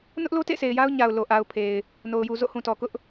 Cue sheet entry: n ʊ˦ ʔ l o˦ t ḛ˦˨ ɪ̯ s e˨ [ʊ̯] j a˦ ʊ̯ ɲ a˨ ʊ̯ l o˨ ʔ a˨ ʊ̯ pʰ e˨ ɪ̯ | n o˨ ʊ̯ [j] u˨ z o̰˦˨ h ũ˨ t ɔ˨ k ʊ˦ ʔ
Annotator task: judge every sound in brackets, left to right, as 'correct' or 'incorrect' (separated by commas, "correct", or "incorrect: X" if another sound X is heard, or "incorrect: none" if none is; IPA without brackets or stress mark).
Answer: incorrect: ɪ̯, correct